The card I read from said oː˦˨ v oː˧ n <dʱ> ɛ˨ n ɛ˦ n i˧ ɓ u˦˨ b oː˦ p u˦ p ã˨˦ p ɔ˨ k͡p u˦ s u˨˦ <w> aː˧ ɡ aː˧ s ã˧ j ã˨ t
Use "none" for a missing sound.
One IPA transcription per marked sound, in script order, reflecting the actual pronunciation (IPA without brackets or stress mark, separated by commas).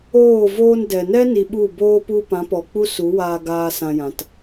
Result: d, w